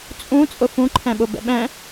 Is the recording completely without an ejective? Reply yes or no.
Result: no